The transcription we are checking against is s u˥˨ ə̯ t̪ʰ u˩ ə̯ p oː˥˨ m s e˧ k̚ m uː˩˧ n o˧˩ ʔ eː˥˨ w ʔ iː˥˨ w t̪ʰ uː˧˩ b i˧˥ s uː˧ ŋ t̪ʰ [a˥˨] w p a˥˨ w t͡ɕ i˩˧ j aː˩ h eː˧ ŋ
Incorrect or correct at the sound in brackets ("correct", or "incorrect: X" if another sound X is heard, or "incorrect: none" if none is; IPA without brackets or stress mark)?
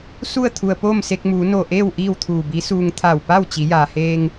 incorrect: a˧˩